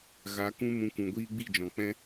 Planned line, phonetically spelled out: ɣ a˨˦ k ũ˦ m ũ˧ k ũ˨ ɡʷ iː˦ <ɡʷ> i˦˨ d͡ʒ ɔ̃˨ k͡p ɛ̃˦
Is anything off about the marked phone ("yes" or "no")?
yes